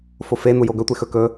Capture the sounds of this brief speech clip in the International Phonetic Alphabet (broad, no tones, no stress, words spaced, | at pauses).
fofe n̪ujoɡɵ tʷexɵ kɵ